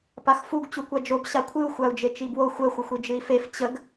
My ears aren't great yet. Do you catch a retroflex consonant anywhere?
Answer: no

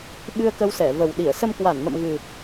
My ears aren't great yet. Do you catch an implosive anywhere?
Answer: yes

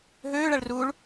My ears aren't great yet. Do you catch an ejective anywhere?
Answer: no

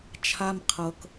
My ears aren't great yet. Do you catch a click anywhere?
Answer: no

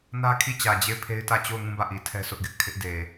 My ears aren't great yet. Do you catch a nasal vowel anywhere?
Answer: yes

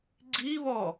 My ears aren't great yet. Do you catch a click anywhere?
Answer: yes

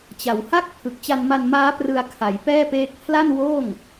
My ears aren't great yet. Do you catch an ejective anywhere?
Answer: no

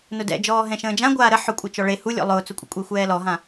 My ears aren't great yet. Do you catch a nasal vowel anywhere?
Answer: yes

